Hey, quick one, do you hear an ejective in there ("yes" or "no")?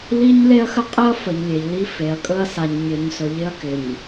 yes